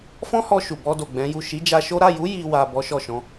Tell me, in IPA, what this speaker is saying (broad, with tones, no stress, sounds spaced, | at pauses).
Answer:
f ɔ̃˦ h ɔ˧ ʃ u˨ b ɔ˧ d o˨ ɡ͡b ɛ̃˨˦ j u˦˨ ʃ i˨˦ d͡ʒ a˧ ʃ o˦ ɾ a˦˨ j u˨˦ j i˧ w a˨ b ɔ˨˦ ʃ ɔ˦˨ ʃ ɔ̃˨˦